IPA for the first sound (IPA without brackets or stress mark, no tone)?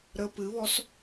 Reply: ɾ